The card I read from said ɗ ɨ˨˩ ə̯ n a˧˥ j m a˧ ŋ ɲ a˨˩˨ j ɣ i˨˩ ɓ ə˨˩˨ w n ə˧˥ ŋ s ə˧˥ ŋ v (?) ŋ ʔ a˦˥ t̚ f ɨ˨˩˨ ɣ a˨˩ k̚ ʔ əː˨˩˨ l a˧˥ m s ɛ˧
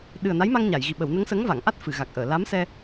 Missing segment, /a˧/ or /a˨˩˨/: a˨˩˨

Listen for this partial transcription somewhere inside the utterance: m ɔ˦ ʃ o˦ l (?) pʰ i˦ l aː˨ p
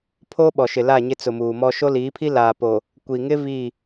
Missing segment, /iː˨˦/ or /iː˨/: iː˨˦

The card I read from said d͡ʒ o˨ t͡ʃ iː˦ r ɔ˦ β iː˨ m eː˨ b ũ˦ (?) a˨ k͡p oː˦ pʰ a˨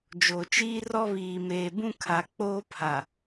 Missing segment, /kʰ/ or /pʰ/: kʰ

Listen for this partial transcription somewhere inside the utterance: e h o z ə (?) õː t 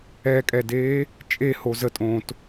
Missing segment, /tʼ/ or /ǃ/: tʼ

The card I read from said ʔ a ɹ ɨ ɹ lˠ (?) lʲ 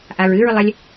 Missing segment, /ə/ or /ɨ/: ə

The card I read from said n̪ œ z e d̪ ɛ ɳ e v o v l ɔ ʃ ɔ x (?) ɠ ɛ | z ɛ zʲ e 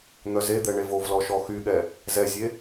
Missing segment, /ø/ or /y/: y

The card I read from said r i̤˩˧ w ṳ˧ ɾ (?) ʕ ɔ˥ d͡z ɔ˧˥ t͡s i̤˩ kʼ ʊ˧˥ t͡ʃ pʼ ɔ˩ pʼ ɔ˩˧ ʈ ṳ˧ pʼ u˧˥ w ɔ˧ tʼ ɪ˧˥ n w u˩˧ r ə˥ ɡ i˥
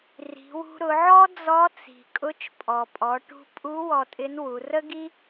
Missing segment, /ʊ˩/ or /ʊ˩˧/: ʊ˩˧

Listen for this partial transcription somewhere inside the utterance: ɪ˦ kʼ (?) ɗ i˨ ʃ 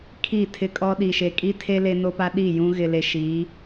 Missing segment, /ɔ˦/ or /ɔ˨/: ɔ˦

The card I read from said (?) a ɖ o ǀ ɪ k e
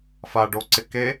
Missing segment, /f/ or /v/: f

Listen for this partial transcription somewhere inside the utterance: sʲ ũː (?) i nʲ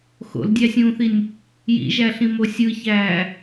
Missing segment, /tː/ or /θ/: θ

